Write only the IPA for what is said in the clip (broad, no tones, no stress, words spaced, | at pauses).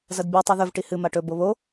zɐdbʲʉ tˤʉðɵv ʈihɨ maʈɵ boβo